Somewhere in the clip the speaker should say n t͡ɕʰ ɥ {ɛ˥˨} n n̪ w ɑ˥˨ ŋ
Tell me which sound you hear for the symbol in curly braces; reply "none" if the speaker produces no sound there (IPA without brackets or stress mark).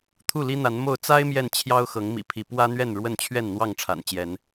ɛ˥˨